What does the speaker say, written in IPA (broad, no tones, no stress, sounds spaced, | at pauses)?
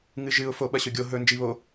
ŋ ɨ ʒ ɨ ʊ̯ f o ɓ ɐ ɕ ɵ ɡʲ o ɦ ɵ n d͡ʒ i β o